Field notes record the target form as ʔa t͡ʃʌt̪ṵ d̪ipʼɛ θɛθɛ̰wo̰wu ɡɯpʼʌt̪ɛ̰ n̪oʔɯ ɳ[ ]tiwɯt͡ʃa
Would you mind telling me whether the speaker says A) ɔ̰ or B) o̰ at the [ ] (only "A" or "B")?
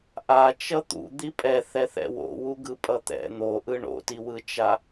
B